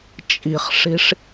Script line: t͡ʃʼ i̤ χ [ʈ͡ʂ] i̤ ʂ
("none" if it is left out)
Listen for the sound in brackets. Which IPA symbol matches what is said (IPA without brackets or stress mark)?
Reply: ʂ